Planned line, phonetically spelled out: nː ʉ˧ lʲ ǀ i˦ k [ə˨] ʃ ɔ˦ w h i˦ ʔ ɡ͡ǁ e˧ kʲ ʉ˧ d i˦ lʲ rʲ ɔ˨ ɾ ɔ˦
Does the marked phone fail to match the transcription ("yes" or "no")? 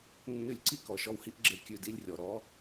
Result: yes